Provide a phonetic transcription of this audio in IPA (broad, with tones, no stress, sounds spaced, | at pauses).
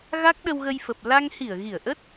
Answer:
ɣ a˦˥ k̚ ɗ ə˧ w ɣ ə˧ j f ə˨˩ p̚ l a˧ ŋ h i˧˩ ə̯ ɣ i˧˩ ə̯ ʔ ə˦˥ t̚